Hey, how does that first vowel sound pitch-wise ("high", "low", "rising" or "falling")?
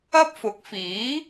high